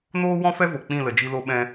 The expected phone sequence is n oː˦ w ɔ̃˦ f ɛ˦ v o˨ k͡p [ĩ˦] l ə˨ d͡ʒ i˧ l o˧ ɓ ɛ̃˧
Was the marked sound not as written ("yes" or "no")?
yes